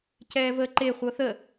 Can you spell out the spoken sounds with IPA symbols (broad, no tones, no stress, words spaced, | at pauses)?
cɛːvəːǃe χʷɤθə